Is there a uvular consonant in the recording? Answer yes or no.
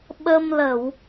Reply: no